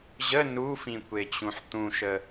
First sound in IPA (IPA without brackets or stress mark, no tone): ʑ